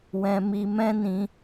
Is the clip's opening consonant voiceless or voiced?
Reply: voiced